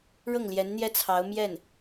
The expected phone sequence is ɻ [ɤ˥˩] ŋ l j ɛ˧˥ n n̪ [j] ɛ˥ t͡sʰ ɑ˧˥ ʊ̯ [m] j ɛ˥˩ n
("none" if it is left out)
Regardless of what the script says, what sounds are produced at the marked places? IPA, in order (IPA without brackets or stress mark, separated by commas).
ɤ˥˩, j, m